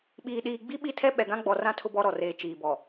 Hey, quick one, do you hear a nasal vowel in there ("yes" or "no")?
yes